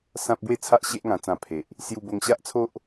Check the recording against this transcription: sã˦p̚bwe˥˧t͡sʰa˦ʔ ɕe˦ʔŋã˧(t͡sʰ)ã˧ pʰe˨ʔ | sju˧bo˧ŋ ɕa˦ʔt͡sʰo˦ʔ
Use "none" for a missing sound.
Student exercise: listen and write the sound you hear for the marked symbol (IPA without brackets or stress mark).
t͡s